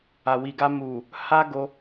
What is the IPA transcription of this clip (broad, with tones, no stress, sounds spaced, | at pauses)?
a˨ w i˨ ɡ a˧ m u˨ | h a˦ ɡ o˧